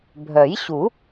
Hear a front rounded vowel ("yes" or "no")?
yes